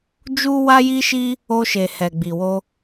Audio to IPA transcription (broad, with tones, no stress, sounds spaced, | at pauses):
d͡ʒ u˦ w a˦ j i˦ ʃ i˦ | o˧ ʃ e˨ h ɛ˨ ɡ͡b i˨ w o˧